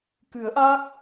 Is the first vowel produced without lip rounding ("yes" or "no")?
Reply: yes